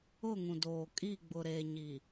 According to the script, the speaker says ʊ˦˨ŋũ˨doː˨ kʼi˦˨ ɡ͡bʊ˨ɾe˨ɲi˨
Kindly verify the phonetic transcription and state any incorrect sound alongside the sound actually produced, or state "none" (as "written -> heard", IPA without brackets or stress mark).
none